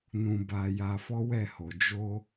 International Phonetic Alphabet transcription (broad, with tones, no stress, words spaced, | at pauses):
nũ˨ba˨ ja˧fɔ˦wɛ˦˨ho˨ d͡ʒo˧